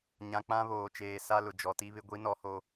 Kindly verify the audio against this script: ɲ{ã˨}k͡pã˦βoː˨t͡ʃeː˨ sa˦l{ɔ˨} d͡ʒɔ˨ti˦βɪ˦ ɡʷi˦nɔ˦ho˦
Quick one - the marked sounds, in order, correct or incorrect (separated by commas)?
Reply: correct, incorrect